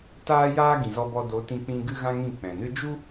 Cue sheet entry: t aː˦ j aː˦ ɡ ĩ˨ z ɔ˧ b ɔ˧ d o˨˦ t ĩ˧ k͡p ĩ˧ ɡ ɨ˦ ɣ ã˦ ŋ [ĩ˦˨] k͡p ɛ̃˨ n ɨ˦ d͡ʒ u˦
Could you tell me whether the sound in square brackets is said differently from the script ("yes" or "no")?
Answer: no